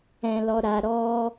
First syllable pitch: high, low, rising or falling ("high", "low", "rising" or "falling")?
low